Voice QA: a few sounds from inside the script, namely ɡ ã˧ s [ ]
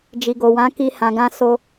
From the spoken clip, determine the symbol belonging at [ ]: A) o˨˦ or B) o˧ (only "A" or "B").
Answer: B